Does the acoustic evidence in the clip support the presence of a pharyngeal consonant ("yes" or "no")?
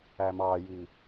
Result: no